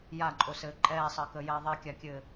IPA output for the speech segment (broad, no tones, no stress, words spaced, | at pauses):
jaǃʼosɘː ǃʼɛːsˤəːkəːjɛː ðˤekʲakʲɘː